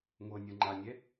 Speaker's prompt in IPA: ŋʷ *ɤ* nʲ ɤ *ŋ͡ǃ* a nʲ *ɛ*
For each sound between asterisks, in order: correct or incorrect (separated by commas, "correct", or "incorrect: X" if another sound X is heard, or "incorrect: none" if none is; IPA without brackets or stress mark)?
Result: correct, correct, correct